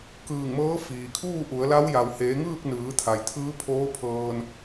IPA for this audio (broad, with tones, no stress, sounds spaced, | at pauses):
k ɯː˧˩ ŋ m ɤː˧˥ f iː˩ kʰ uː˥˨ ʔ u˩˧ ə̯ l a˧˥ w j a˩ w h eː˩˧ ŋ ɯː˥˨ k̚ n ɯː˩˧ t̪ʰ a˩ j t̪ʰ ɯː˧˥ pʰ oː˧˥ pʰ ɤː˧ n